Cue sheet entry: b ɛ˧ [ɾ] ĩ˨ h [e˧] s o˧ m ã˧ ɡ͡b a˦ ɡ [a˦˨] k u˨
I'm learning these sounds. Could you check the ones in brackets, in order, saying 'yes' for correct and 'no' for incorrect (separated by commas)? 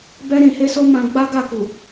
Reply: yes, yes, yes